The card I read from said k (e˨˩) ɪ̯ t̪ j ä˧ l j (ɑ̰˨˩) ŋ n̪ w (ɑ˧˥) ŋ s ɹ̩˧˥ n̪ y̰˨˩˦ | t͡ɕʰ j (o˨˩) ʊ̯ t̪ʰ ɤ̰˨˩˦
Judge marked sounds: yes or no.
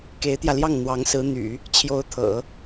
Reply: no, no, yes, no

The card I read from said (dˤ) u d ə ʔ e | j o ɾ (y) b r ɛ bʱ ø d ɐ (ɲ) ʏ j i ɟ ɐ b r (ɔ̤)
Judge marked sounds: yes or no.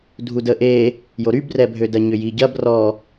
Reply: no, yes, yes, no

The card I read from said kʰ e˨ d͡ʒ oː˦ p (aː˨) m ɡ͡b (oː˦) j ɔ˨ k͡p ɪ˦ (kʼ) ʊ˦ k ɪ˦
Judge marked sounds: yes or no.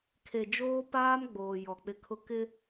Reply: no, no, no

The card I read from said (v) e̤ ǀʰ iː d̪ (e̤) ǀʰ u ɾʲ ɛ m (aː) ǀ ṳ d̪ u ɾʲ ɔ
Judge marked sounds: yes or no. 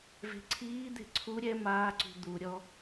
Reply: yes, yes, yes

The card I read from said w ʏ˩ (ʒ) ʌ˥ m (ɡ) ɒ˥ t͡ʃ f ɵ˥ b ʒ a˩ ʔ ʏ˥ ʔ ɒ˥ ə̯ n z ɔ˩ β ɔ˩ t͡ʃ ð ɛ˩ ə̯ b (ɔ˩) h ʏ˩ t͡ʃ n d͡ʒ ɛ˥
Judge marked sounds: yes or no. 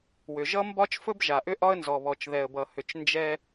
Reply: yes, no, no

